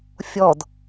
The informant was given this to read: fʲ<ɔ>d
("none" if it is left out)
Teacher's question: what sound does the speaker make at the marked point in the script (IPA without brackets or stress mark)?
ɔ